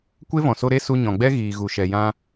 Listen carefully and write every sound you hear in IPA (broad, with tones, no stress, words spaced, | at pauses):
kʷe˦vɔ̃˨so˧ ɾe˦su˧ɲɔ̃˨ɡ͡bɛ˦ ɣiː˨ ɣu˨ʃɛ˨jã˧